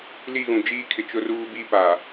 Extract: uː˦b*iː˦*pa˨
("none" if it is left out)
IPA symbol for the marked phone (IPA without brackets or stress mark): iː˦